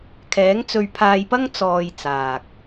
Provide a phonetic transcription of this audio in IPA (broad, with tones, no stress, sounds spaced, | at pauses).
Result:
kʰ ɛː˨˥ ŋ t͡s ɵ˧ ɥ pʰ aː˧ j p ɐ˥ ŋ t͡s ɔː˧ j t͡s aː˨ k̚